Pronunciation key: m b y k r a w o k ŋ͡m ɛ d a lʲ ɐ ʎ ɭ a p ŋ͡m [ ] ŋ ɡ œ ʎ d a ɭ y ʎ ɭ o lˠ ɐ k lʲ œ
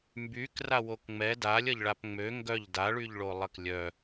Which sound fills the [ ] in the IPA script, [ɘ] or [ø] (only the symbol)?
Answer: ø